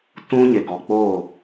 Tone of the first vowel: high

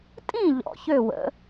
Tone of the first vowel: falling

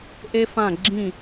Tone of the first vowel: high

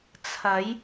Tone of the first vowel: rising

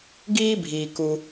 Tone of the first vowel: high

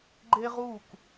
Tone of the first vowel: high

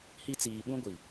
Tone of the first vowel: high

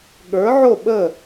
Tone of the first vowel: rising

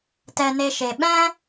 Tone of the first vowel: high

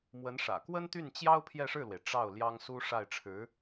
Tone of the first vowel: rising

